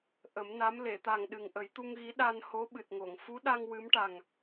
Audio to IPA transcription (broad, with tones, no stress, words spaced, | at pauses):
ʔə˨˩˦mna˧˥m le˨˩˨t̪a˨˩ŋ ɗɨ˨˩ŋʔə˨˩˦jt̪u˧ŋɣi˧˥ ɗa˧nho˧˥ ɓɨ˨˩t̚ŋo˨˩˨ŋ fu˧˥ɗa˧ŋ wɨ˧˥mʈa˨˩ŋ